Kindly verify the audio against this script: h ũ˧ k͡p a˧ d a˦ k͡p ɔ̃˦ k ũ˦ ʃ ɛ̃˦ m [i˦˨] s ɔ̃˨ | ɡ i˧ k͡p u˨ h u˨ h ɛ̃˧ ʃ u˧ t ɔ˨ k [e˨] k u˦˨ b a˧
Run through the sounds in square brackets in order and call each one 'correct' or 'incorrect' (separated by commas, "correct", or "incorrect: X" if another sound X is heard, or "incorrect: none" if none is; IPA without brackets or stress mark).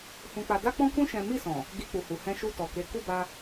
correct, incorrect: e˨˦